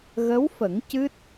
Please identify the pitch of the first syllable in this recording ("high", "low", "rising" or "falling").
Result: rising